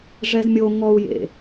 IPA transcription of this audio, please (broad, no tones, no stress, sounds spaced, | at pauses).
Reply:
ʐ ɛ z mʲ o ŋ ɔ u̯ j ḛ